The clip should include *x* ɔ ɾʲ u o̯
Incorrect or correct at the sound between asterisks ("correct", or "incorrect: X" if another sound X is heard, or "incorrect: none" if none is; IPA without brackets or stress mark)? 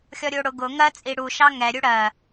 incorrect: xʲ